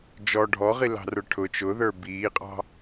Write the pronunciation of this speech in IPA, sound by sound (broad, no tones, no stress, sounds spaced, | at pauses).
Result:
d͡ʒ ɔ ɖʱ ɔ ʁ i l ɑ̤ r ə˞ ʈʰ ʊ t͡ʃ ʊ ð ə˞ b iː qʼ ɑ̤